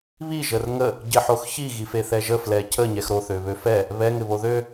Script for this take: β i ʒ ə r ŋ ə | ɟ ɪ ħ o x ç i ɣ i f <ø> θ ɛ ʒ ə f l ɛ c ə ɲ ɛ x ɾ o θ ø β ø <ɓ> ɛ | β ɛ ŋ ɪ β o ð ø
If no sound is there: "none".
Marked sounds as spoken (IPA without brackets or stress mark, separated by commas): e, f